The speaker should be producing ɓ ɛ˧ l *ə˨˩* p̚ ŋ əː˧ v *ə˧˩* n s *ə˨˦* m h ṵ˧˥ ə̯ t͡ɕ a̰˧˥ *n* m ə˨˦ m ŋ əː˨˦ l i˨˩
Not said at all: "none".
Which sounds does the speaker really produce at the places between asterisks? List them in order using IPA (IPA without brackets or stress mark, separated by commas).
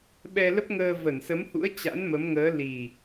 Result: ə˦˥, ə˧˩, ə˨˦, n